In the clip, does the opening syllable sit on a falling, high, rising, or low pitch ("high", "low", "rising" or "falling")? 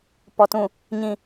low